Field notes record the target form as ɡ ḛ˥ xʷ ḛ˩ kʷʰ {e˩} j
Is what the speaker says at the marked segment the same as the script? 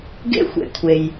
yes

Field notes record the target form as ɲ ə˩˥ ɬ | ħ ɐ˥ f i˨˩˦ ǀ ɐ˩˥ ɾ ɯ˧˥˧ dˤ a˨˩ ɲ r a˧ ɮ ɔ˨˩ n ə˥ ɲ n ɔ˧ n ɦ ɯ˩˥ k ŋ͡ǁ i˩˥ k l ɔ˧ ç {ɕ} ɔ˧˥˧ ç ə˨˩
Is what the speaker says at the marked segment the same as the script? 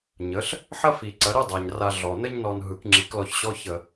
yes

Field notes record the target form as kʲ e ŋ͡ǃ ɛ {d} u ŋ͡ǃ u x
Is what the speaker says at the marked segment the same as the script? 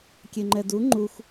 yes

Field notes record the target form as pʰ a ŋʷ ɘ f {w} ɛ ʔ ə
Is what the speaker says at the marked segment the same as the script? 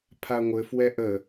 yes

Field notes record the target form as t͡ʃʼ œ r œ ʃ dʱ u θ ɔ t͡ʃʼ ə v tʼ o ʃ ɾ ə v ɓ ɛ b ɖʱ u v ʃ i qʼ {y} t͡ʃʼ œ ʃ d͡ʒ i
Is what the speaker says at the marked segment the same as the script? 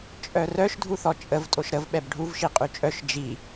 yes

